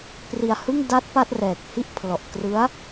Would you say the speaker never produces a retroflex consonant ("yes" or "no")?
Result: yes